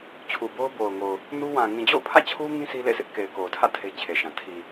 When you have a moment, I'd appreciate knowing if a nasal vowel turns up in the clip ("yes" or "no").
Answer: yes